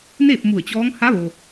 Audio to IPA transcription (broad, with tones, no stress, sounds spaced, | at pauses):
n eː˥˨ p̚ m u˧˩ ə̯ t͡ɕ ɔː˧˥ ŋ h a˧˥ ʋ o˩